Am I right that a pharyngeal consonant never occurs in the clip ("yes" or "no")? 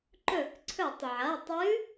no